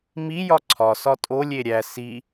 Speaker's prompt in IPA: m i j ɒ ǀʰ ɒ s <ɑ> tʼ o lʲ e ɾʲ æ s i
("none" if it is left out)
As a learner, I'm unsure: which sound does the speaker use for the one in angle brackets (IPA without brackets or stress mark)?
ɒ